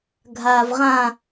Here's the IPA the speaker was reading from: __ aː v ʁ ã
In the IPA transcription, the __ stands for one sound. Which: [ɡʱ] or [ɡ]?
ɡʱ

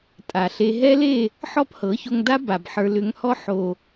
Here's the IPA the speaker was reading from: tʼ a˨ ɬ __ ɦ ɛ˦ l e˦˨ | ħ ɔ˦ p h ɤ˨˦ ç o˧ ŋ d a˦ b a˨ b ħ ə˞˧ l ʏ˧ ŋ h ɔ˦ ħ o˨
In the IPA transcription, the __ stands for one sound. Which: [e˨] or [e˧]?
e˧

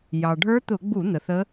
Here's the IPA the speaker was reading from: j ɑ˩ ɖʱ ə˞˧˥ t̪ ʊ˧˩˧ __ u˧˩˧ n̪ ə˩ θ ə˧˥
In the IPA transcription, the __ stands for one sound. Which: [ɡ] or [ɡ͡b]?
ɡ͡b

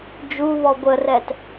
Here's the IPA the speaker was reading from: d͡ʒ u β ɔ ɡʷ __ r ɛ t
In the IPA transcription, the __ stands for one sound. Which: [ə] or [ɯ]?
ə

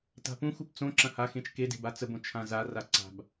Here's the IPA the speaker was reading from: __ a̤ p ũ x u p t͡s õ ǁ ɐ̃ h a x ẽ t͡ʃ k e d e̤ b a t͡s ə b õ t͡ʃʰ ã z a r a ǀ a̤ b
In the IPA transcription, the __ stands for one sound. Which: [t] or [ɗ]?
t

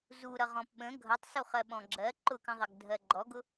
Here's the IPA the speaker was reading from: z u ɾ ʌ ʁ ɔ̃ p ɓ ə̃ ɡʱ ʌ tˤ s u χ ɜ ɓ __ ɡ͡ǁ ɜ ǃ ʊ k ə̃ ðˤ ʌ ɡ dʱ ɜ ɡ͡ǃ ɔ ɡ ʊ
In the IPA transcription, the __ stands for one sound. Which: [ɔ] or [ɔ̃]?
ɔ̃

